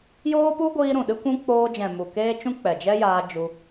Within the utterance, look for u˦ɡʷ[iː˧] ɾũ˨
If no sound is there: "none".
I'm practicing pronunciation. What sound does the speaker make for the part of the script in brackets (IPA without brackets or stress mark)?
iː˧